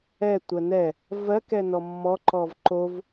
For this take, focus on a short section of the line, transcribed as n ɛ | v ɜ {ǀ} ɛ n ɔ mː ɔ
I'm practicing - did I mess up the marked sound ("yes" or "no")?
yes